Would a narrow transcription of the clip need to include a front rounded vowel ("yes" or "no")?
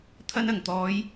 no